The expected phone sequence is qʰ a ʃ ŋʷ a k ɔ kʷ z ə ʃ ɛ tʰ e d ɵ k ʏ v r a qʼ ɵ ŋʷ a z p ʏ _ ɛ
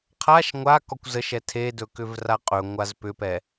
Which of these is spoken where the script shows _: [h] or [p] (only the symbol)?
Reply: p